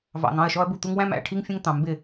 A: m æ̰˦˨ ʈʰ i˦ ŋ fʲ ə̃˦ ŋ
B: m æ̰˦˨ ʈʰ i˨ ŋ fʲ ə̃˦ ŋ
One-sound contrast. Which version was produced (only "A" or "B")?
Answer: A